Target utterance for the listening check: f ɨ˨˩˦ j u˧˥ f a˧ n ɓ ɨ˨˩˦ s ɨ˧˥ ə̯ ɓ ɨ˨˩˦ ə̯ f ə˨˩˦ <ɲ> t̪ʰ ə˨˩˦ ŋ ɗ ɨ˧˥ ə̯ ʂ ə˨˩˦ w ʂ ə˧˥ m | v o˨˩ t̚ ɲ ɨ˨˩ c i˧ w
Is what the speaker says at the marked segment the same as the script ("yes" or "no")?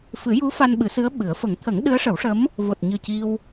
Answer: no